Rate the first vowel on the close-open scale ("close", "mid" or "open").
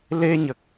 mid